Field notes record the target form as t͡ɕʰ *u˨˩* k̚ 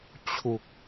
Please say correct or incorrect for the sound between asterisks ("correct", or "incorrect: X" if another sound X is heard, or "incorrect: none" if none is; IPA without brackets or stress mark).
correct